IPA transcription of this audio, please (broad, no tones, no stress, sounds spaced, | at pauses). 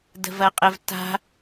d ə̤ v ɐ qʼ ə v t a̤